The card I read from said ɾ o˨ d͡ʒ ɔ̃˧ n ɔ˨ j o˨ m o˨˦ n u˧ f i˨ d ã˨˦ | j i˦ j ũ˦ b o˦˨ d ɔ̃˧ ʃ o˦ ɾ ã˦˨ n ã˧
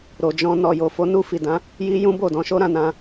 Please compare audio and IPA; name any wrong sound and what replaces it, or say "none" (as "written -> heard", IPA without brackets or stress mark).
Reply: m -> f